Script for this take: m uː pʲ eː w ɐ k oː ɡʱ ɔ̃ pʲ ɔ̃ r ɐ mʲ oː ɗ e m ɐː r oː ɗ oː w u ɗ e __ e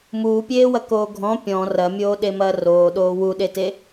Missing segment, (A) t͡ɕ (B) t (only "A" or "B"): B